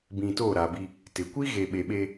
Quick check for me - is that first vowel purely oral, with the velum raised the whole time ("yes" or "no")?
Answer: no